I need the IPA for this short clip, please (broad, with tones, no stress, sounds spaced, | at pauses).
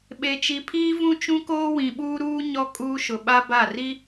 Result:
ɓ e˨ t͡ʃ i˨ pʰ iː˦ v ũ˦ t͡ʃ ũ˦ k oː˦ w ĩ˨ ɓ uː˦ ɾ uː˦ ɲ ɔ˦ kʼ uː˦ ʃ ʊ˨ ɓ a˦ b a˦˨ r i˦